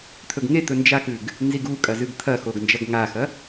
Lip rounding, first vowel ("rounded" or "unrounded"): rounded